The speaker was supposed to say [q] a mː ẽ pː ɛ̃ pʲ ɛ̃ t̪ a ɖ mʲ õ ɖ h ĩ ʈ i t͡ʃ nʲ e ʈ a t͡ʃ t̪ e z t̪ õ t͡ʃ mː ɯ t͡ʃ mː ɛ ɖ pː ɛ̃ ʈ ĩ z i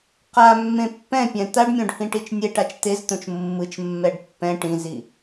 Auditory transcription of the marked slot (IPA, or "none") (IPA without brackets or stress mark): q